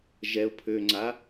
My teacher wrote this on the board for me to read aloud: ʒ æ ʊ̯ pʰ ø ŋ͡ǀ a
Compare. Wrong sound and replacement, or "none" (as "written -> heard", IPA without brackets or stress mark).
æ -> ɛ